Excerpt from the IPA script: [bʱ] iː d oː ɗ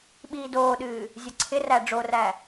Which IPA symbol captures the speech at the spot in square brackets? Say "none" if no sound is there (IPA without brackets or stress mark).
ɓ